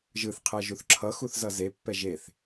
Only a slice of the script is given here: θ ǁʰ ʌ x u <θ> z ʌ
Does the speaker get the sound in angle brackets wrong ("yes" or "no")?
no